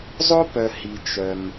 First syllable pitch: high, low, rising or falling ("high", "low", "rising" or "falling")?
high